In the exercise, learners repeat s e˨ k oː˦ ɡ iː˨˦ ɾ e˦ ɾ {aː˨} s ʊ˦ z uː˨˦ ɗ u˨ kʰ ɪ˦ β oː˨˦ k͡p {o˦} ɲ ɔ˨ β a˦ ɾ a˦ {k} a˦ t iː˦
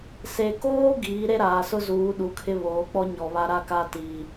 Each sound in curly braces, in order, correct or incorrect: correct, incorrect: ɔ˦, correct

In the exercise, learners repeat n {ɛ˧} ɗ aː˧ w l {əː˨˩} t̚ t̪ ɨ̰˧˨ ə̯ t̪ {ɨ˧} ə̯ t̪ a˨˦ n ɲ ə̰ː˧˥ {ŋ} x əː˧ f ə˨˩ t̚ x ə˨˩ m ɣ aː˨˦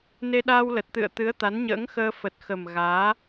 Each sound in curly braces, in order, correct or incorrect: incorrect: e˧, incorrect: ə˨˩, incorrect: ɨ˨˦, correct

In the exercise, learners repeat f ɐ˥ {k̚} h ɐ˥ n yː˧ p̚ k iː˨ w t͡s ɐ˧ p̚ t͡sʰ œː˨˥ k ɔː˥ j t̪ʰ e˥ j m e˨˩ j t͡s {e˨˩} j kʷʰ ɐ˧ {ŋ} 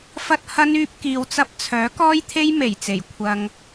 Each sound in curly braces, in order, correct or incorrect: incorrect: t̚, correct, correct

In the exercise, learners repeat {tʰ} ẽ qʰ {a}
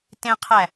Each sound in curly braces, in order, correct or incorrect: incorrect: t, incorrect: æ

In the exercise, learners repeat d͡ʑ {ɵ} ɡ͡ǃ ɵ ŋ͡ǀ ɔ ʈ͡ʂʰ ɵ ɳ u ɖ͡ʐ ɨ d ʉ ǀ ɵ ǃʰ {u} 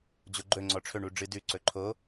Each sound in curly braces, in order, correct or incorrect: incorrect: o, incorrect: o

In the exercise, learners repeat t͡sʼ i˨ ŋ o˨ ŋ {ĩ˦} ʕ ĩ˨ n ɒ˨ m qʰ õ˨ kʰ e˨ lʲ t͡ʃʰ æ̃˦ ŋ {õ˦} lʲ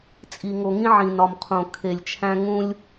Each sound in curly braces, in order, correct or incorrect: correct, incorrect: ũ˦

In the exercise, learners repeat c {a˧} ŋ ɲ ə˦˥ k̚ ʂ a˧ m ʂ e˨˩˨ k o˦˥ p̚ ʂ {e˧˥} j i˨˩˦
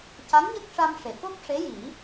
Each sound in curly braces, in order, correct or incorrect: incorrect: a˧˥, correct

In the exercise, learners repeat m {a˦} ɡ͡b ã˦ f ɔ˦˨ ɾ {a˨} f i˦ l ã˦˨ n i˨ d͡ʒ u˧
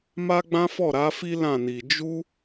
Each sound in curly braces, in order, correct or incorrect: correct, incorrect: a˨˦

